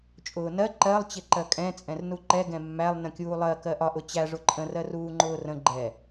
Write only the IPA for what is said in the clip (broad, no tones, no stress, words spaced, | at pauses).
t͡ʃʼʊːnɜ ǃɜlˠ t͡ɕɪǃɜkʼɛ̃ t͡sʼɛ̃rnuǃɛ ɡɛ̃mːælˠ nə̃kʲuːlˠɜ kɜʔɒʔ ʊt͡ɕæ ʐʊǃʼə̃ rɜruːŋ͡ǃʊːrə̃ ɡ͡ǃɛ